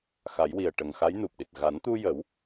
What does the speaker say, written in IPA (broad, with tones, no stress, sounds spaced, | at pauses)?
x a˨˩˦ j w i˨˩ ə̯ ʈ ə˨˩ ŋ x a˧˥ j n u˨˩ p̚ ɗ i˨˩ t̚ ɣ a˨˩˦ n t̪ u˧ j ə˨˩˦ w